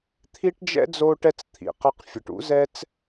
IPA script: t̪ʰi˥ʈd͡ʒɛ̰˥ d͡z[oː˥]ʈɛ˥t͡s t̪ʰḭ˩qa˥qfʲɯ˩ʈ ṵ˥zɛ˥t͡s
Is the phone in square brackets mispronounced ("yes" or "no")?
no